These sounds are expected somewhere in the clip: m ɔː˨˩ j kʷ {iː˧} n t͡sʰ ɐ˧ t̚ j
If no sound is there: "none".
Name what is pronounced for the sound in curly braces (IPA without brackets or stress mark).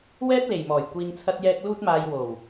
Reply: iː˧